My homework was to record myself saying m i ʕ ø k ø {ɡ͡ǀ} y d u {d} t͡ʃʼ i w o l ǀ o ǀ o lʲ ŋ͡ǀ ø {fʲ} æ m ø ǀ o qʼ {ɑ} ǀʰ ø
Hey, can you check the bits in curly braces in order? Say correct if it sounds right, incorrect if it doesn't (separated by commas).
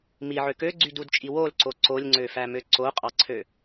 correct, correct, incorrect, correct